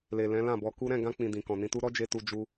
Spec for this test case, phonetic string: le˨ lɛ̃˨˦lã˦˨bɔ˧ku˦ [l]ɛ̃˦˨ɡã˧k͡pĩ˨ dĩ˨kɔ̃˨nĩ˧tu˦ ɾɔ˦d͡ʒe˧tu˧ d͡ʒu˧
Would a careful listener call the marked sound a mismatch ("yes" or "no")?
yes